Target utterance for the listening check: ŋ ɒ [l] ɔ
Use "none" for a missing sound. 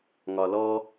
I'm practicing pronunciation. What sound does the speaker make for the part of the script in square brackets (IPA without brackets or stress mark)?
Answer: l